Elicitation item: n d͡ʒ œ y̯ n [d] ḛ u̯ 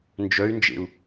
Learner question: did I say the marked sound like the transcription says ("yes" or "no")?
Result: no